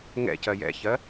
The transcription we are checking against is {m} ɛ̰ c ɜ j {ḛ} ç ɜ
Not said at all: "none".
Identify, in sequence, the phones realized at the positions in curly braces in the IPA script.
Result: ŋ, ɛ̰

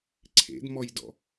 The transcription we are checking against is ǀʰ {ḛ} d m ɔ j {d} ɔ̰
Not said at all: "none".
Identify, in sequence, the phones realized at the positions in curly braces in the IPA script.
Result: ḛ, d

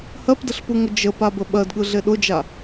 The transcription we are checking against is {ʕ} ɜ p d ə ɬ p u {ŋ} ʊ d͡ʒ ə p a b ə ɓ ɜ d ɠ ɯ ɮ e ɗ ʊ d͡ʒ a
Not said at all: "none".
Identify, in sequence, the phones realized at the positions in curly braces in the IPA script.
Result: h, ŋ

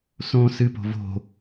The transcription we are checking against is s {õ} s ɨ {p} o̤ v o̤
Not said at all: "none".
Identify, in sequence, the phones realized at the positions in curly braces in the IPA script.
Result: õ, p

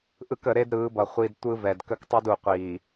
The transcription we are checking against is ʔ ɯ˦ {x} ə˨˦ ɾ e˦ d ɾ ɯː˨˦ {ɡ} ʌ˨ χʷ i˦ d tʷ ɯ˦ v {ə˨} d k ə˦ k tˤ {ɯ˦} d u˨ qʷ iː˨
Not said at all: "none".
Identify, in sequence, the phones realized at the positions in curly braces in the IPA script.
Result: k, b, ɛ˨, ɯ˦

